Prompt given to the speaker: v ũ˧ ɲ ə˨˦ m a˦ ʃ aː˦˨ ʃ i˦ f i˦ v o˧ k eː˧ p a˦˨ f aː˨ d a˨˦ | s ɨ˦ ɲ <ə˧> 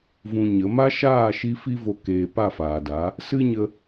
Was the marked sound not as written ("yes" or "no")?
no